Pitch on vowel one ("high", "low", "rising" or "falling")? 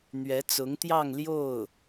rising